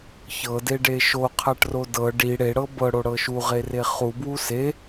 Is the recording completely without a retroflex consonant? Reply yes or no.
no